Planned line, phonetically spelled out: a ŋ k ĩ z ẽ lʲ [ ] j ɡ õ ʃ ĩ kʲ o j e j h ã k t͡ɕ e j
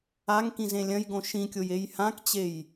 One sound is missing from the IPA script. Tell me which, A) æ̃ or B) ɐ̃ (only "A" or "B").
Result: B